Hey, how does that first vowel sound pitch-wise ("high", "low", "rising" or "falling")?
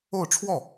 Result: falling